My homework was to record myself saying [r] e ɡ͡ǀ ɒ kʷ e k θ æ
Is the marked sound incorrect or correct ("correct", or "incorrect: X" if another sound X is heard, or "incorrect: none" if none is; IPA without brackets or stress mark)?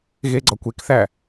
incorrect: ɣ